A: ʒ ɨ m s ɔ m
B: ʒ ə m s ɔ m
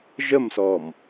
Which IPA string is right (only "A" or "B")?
B